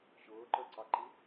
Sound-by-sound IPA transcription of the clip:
ɕ ʊː ǃ ə˞ ǀ ɑ ǃ i

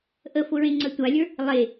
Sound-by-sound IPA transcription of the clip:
ʔ ə f ʊ ɹ ẽ ŋ͡ǀ ə tʷ a lʲ ə˞ | lˠ e

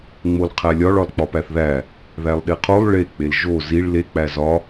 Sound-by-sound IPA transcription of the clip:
ŋ͡m o l qʰ æ lʲ ɒ ɭ ɒ l k͡p ɒ p æ θ ð æ | ð æ lˠ ɗ e qʰ o lˠ ɭ e k͡p e l ʒ o z i ɭ l e k͡p æ z ɒ

